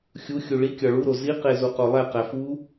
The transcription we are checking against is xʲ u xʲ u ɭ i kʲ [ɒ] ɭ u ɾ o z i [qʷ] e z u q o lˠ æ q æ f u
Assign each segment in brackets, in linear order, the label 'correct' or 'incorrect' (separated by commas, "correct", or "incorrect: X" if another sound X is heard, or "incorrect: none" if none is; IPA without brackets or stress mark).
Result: correct, incorrect: q